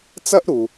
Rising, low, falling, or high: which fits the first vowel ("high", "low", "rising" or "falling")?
high